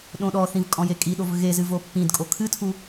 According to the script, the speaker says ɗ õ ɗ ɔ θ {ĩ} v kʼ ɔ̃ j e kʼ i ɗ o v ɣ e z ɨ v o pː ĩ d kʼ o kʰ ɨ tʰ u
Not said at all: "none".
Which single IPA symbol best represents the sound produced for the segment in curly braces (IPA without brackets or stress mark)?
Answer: ĩ